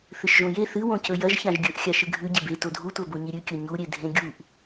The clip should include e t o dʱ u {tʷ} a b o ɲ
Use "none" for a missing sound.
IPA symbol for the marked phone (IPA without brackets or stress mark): tʷ